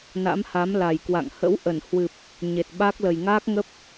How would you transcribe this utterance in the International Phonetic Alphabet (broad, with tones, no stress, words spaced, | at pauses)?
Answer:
na̰˧˥mha˨˦mla˨˩j kwa̰˧˨ŋ hə̰˧˥wʔə˧˩nhwɨ˨˩p̚ | ɲe˨˩t̚ɓa˦˥k̚ lə˨˩jŋaː˦˥k̚ŋə˦˥p̚